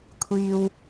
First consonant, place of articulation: velar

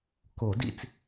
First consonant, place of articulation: velar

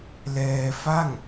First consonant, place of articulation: alveolar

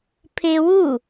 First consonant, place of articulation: labial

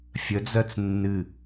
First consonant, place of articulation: labial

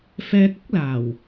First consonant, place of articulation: labial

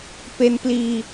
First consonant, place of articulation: labial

